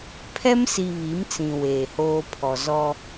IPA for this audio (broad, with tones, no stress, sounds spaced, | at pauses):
pʰ ɛ˦ m s i˨ β i˨˦ m t͡s ĩ˨ w eː˨ h oː˦ pʰ ɔ˨ z ɔ˦